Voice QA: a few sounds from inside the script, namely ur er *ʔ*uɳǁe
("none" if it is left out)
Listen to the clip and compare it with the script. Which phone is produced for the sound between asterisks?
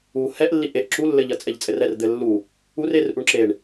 ʔ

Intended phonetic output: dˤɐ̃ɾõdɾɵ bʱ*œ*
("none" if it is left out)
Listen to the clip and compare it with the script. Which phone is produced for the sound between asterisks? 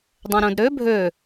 ɵ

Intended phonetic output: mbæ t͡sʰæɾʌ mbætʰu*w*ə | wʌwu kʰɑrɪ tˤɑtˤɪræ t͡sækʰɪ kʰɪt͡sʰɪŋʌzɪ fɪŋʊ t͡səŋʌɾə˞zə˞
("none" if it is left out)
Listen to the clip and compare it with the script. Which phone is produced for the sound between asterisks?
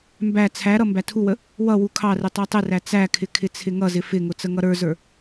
w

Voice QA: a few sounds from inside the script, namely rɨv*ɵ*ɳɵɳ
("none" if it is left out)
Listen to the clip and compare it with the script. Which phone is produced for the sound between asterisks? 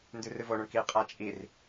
o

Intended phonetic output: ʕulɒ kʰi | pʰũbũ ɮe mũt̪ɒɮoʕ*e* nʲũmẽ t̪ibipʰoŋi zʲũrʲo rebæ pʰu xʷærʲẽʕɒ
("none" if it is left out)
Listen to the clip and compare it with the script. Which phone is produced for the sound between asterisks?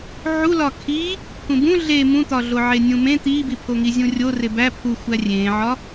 e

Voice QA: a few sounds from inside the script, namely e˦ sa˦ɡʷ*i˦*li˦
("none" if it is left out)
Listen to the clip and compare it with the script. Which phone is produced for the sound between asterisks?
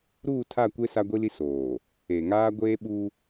i˦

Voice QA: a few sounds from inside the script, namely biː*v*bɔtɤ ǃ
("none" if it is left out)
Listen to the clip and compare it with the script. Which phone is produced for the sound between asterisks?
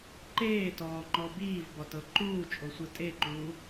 v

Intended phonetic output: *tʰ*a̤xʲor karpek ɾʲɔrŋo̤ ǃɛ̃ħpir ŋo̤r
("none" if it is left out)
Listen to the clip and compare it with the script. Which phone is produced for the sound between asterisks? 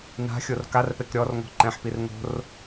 n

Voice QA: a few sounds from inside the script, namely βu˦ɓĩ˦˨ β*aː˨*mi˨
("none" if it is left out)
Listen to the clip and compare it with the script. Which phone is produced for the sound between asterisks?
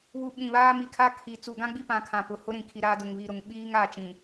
aː˦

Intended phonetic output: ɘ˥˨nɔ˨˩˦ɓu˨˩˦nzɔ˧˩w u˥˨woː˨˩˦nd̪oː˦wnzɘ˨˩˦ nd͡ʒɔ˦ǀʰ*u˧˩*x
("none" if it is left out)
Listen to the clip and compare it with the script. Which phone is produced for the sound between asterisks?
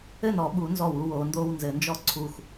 u˧˩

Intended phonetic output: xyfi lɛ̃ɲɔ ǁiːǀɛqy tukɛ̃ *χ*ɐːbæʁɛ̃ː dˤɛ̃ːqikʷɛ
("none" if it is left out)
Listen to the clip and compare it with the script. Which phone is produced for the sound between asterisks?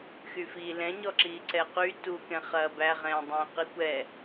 χ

